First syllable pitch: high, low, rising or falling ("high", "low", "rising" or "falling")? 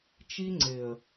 high